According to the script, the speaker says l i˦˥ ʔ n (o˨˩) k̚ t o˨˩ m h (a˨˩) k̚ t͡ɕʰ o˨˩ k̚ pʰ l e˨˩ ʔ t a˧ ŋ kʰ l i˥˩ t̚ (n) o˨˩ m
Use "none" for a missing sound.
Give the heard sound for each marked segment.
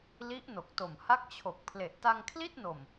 o˨˩, a˥˩, n

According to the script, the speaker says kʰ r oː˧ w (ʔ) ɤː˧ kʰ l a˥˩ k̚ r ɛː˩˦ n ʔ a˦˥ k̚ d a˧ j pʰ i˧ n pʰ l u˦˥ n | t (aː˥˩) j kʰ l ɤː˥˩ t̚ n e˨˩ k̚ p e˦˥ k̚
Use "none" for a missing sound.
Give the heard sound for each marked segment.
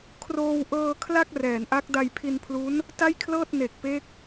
ʔ, a˥˩

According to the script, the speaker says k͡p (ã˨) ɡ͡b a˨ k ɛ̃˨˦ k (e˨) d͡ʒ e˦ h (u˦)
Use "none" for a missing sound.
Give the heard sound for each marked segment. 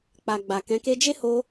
a˨, e˧, o˦

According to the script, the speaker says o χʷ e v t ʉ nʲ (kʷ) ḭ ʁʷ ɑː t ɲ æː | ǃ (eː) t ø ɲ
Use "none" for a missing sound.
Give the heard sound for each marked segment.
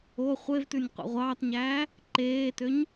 qʷ, eː

